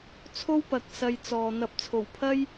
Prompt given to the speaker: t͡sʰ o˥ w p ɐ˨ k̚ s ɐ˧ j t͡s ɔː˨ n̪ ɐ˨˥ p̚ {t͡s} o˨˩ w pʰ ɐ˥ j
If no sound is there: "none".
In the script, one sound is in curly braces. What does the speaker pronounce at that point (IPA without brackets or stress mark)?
t͡sʰ